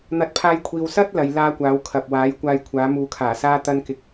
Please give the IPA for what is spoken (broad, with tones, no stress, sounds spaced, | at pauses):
n̪ ɐ˨˥ t̚ pʰ aː˧ j kʷʰ iː˨ w s ɐ˥ t̚ l ɐ˨˧ j l aː˥ kʷ aː˨˥ w kʰ ɐ˨ p̚ w aː˨˥ j kʷ aː˧ j kʷʰ aː˨˥ m uː˨˧ kʰ aː˨˩ s aː˥ t̪ ɐ˥ n k ɪ˧ k̚